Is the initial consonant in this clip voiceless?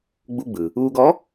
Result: no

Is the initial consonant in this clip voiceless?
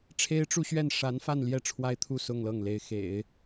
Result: yes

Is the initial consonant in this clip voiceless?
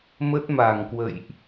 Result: no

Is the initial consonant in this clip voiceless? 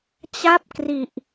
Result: yes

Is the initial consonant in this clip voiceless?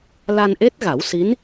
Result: no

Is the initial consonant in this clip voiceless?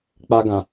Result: yes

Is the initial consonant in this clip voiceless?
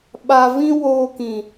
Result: no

